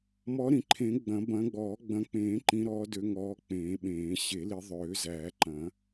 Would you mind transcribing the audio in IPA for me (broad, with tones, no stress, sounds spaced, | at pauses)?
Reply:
m ɔ˨˦ ɾ ĩ˨˩˦ ǃʰ ẽ˨˩˦ ɡ͡b ɐ̃˨˩˦ b ɐ̃˨˦ ɡ͡b ɔː˨˩˦ ɡ͡b ɐ̃˨˦ k͡p ẽː˨˩˦ ǃ ĩ˨˦ ɾ ɔː˨˦ d ø˨˦ ŋ ɔː˨˦ k͡p ẽː˨˩˦ ɓ ẽː˨˩˦ ɕ e˨˩˦ l i˨˦ ðˤ øː˨˩˦ z æː˨˩˦ ǃ ɐ̃˨˩˦